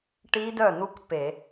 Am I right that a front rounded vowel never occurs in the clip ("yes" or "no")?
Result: no